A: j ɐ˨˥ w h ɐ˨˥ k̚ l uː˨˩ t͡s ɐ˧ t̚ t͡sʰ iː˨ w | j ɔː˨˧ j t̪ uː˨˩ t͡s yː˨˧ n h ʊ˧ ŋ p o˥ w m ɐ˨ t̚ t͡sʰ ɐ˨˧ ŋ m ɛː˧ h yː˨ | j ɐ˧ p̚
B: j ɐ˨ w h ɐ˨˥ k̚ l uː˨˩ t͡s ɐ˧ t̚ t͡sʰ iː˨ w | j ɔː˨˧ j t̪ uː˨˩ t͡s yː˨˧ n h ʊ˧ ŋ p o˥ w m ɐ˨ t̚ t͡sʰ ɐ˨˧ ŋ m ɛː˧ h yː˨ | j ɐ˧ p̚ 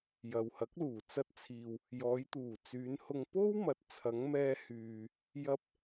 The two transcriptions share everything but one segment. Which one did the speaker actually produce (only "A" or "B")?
B